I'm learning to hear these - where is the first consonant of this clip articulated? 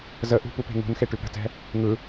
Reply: tongue tip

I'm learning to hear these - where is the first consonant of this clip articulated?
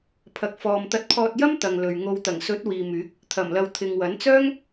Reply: lips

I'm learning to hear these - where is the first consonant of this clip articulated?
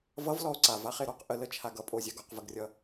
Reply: lips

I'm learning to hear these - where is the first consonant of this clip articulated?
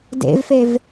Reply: tongue tip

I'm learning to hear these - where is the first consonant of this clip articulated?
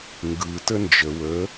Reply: velum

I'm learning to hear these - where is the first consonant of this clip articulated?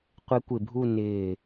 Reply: uvula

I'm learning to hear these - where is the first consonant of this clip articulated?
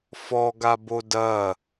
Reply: lips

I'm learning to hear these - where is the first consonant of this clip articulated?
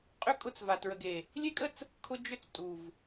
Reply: uvula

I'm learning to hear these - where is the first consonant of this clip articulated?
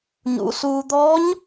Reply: palate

